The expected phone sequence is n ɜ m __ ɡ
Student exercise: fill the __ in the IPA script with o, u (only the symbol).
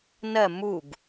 u